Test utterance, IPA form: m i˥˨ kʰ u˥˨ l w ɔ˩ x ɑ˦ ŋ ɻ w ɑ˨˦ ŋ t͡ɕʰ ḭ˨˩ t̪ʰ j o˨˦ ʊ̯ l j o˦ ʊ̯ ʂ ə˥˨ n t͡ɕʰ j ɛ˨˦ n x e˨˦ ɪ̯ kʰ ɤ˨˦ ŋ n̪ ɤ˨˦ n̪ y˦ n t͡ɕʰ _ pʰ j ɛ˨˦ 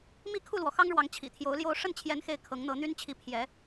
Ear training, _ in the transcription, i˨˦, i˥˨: i˨˦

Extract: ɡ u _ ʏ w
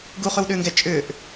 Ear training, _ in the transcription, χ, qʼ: χ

